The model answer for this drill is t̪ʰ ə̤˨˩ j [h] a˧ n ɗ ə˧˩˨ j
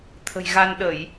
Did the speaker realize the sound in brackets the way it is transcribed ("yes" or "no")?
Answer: no